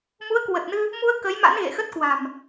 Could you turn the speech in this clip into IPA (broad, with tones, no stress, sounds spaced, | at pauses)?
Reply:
m u˨˦ ə̯ k w ə˨˩ t̚ n ɨ˧ | m u˧ ə̯ k ə˨˦ j m a̰˧˥ n ɣ ḛ˧˨ x ə˦˥ t̚ k w a̤˨˩ m